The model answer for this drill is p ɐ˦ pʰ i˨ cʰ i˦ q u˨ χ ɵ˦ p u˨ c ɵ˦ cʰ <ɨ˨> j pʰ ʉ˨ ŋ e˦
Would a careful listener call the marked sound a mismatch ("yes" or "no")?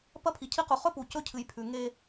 no